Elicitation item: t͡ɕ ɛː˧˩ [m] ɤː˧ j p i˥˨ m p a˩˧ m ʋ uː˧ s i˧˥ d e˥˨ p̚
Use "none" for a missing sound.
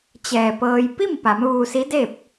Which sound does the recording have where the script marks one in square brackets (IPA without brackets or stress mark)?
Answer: p